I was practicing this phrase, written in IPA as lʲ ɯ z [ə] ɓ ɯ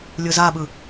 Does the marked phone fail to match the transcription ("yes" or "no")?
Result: yes